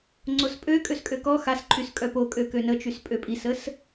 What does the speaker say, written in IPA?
ŋ͡ǀ o s pʼ ø kʼ ø s kʼ ø k ɔ x a s ǃʰ y s kʼ œ p o kʼ ø k ø n ə t͡ʃ y s pʼ ø pʼ i s ə s

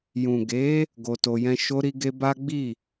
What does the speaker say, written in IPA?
j ũ˨ ɡ e˨˦ | ɡ o˧ t o˧ j ɛ̃˦ ʃ o˧ ɾ i˧ ɡ e˧ b a˦ ɡ͡b i˦˨

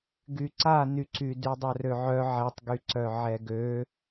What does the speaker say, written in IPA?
ɡ y ǀ a n y ǀ y d y dˤ œ r ø ʕ œ ʕ ɛ tˤ ɡ y ǀ œ ʕ ɛ ɡ ø

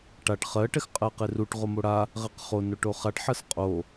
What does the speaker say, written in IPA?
ʈ a ʈ χ ɜ ʈ ɛ x qʼ ɜ q e r u ʈ ʁ o m o ɽ a | ʁ ɛ q χ o n o ʈ o χ a ʈ ħ ɜ s qʼ o

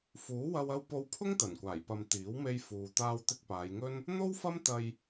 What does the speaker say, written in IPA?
f uː˨˥ w ɐ˧ w ɐ˧ w p o˧ w pʰ ʊ˥ ŋ t̪ ɐ˨˩ n kʷ aː˨˩ j p ɐ˨ m t̪ iː˨˥ w m e˧ j f uː˨ t̪ aː˧ w t̪ ɪ˧ k̚ p aː˨˧ j ŋ ɵ˥ n | n̪ o˥ w f ɐ˥ m t̪ ɐ˧ j

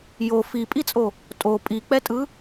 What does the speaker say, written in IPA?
j o f i pʼ i t͡sʼ o | tʼ o pʼ i k͡p ɛ tʼ ɯ

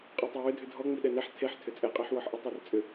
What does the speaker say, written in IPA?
qʼ e tˤ ə w ʏ dʱ ʏ dʱ ɔ ŋ͡m i ɗ ɛ n ɛ ħ tʰ e ħ tʰ ʏ t͡sʼ ɛ qʼ ɛ ħ w ɔ ħ ʔ ə tˤ ɛ r t͡sʼ ʏ

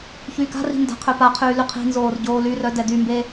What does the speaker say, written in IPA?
ç yː k a̤ r i̤ n d a̤ qʰ ø p a qʰ yː l y qʰ i̤ n z oː r ɟ oː l y r œ d ɛ d y m b e

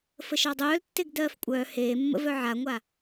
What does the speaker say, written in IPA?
f ə ʃ ɑ dˤ œː l tː e ɡ d ɜː f kʷʼ œː h eː mː ə̰ v œ ʕ a ŋʷ a

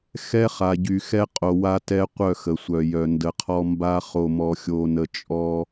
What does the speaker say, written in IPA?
x ɛ˦ χ a˨ ɟ y˨ x ɛ˦ qʼ o˨ w a˦ t ɛ˦ qʷ œ˦˨ x ə˨ sʷ œ˨ j œ˨ n d ə˨ qʰ ɔ˦ m b a˦ χ o˨ m ɔ˨ xʲ o˨ n ə˨ t͡ʃʼ ɔ˦

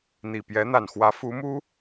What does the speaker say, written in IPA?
n̪ i˨˩ p j ɛ˧˥ n̪ a˨˩ n x w ä˧˥ f u˧˥ m u˥

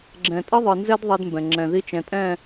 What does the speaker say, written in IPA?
ɡ͡ǁ ɛ̃˨ tʼ ɪ˦ ðˤ ɯ˨ n z ɛ˦ d ðˤ ɛ˦ d m b ɛ̃˨ ŋ͡ǁ ɛ̃˨ ð i˦ t͡ʃ ɛ̃˨ tʼ ɛ̃˦˨

